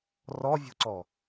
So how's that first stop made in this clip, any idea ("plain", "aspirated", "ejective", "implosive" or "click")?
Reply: click